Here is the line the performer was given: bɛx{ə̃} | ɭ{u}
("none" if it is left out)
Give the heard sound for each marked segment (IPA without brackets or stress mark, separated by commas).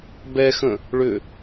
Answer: ə̃, ʏ